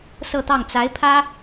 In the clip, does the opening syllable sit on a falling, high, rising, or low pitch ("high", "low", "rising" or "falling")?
falling